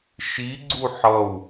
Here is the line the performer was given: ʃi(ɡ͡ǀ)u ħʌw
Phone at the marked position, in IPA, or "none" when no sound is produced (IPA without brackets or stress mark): ɡ͡ǀ